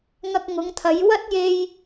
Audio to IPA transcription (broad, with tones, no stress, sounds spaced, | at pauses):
ŋ ɐ˧ k̚ ŋ ʊ˨˧ ŋ t̪ʰ ɐ˨˧ j w ɐ˥ t̚ j e˧ j